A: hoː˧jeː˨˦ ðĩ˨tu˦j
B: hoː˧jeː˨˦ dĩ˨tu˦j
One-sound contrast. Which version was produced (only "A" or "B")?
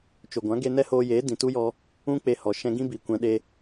B